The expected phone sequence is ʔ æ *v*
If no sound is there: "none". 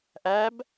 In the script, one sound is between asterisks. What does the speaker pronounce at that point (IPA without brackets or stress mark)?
b